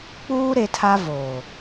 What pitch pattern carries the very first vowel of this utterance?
high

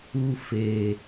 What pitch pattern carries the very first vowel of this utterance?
high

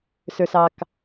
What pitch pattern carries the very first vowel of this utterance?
low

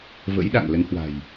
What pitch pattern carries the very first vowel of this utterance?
rising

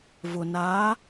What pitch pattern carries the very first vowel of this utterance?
low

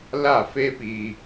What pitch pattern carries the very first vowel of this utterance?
falling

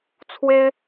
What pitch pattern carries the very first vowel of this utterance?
high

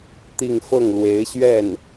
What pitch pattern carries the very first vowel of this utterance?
falling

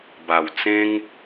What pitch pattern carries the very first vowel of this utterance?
low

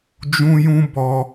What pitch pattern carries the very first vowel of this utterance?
high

